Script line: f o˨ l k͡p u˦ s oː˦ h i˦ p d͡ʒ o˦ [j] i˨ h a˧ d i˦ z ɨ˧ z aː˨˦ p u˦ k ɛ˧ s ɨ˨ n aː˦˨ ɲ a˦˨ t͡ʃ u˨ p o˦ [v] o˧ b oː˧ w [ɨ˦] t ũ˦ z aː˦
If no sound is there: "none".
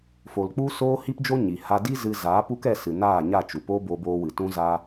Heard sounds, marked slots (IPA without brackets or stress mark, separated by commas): ɲ, b, ɨ˨